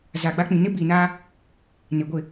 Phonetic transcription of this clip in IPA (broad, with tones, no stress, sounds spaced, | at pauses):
z a˨ ɡ͡b a˦ k͡p ĩ˨ n ɪ˦ b i˨ n aː˦ | n ɪ˨ ɡʷ ɪ˦˨